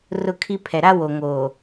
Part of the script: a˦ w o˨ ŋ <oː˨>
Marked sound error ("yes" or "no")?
no